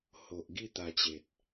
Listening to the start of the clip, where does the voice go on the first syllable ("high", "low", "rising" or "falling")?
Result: low